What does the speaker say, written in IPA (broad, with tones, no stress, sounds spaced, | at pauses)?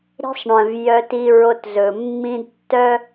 ɾ i̤˦ sˤ ɳ œ̃˨ v j œ˦ t i˦ ɹ o˦ t z ɵ˨ mː ĩ˦ d tː œ˦